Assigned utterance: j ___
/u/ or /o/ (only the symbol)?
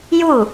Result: u